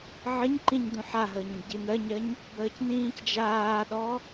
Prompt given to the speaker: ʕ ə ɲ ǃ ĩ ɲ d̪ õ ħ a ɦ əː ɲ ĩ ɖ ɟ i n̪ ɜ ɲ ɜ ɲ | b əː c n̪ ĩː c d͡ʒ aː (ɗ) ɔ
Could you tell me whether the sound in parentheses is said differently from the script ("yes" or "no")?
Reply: no